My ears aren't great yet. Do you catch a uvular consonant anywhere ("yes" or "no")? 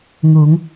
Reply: no